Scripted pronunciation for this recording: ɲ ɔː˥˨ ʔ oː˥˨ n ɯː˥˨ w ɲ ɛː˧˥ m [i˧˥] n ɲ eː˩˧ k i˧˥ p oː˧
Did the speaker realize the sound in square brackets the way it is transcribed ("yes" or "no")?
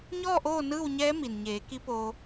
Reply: no